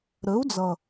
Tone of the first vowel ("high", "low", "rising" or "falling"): rising